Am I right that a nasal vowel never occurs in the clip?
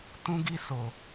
no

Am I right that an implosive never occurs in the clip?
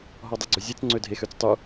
yes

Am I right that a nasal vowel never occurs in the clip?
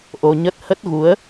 yes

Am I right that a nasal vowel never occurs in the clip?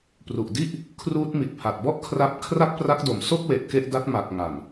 yes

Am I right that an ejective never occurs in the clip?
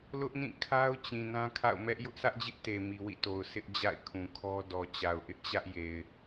yes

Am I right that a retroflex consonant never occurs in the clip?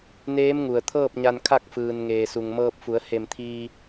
yes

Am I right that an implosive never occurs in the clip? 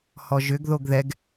yes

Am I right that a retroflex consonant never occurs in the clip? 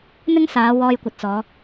yes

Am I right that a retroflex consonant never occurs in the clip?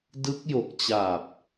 yes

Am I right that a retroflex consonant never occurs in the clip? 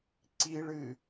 no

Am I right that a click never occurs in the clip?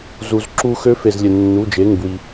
no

